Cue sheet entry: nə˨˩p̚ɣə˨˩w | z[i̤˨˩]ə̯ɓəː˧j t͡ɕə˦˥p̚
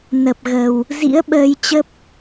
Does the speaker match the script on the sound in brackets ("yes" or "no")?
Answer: no